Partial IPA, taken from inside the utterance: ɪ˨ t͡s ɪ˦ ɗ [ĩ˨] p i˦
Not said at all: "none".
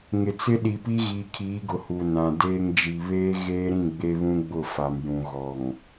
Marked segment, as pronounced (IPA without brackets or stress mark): i˨